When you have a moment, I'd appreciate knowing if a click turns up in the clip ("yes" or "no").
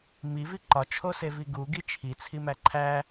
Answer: yes